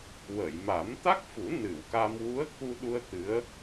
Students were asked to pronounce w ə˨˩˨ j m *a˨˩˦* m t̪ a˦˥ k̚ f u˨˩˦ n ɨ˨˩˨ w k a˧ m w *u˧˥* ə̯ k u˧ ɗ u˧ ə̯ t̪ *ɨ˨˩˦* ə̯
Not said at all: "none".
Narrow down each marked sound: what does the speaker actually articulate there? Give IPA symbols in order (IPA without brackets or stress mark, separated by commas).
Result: a˨˩˦, u˧˥, ɨ˧˥